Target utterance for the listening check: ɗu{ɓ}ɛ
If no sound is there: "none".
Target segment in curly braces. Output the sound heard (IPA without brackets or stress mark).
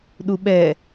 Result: ɓ